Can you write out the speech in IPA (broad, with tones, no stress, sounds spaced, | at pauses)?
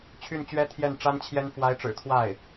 t͡ɕʰ y˥˩ n t͡ɕ ɥ ɛ˥ t̪ʰ j ɛ˥˩ n ʈ͡ʂ a˥ n t͡ɕʰ j ɛ˥ n f w a˧˥ ɪ̯ ʈ͡ʂ ɻ̩˨˩ t̪ʰ w a˥˩ ɪ̯